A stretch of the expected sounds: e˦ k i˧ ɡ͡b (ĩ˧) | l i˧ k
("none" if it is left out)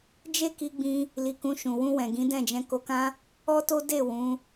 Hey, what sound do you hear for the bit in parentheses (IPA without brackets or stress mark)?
ĩ˧